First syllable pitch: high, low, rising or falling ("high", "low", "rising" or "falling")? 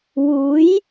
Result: rising